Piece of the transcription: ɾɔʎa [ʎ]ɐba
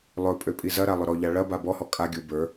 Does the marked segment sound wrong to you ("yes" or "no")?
yes